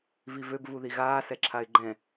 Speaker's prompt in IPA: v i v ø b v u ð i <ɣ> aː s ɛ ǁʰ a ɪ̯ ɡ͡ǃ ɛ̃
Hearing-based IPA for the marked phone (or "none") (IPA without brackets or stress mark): ɣ